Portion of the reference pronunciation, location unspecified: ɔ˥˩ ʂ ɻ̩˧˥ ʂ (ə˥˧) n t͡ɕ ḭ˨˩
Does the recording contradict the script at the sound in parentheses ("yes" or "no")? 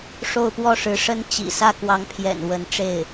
yes